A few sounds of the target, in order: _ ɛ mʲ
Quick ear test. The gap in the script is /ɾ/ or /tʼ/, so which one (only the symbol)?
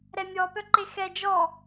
ɾ